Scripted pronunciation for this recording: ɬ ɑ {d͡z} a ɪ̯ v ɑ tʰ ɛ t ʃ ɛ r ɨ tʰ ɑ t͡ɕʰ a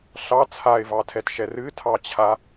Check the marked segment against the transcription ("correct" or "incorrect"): incorrect